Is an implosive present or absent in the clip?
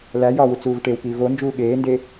present